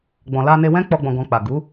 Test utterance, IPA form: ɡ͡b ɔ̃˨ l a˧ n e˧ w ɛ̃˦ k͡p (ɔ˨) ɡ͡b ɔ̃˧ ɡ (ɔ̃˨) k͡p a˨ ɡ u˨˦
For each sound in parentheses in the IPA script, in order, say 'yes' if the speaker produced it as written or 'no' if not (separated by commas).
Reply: no, no